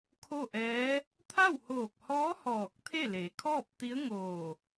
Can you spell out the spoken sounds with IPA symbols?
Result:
kʰ o˥˨ ʔ ɛː˧˥ | t̪ʰ a˥˨ w h oː˧˩ k̚ h ɔː˧˥ h ɔː˧˩ k̚ t̪ʰ e˥˨ l e˩˧ kʰ ɔː˥˨ p̚ t̪ i˧˥ ə̯ ŋ oː˧˩

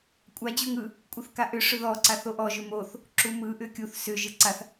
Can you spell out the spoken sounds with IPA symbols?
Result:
kʷʼ a d͡ʑ u ŋ ɯ | kʷʼ ɯ θ k a ʔ ʏ ʂ ʏ ð ɔ ǀ a θ o ʔ ɔ ʒ ʏ m o θ | ǁ u m ɯ ʔ ʏ kʲ u θ s ʏ ʒ ɯ ǀ a θ

